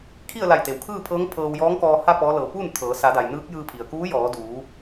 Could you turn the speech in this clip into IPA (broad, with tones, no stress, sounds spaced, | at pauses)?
kʰ i˥˨ ə̯ l a˧˩ j t̪ e˩ w kʰ ɯː˥˨ pʰ ɤː˧˥ ŋ pʰ ɤː˧ w j ɔː˧˥ ŋ k ɔː˧ h a˥˨ p ɔː˧˥ l ɤː˧˩ p uː˥˨ n t̪ʰ ɤː˩˧ s a˩˧ d a˩ j n ɯː˧˥ k̚ j ɯː˧ pʰ i˩ ə̯ k uː˧˥ j ɔː˩˧ d uː˩˧